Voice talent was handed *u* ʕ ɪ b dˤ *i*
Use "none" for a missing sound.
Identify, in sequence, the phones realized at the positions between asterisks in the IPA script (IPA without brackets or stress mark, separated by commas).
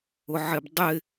ʊ, ɪ